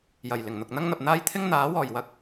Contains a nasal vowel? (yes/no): no